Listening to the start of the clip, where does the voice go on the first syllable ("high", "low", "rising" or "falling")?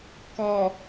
low